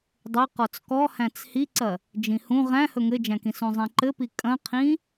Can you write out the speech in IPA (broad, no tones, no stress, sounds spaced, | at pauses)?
dˤ ɘ q ɔ t͡s k ɔ h æ̃ t͡s h i ǀ ɐ | d͡ʒ ĩ h ũ ʁ æ̃ h ɵ ŋ ɘ d͡ʒ æ̃ k ĩ s ũ zˤ ĩ ǃ ɘ p i kʼ ɐ̃ qʰ ĩ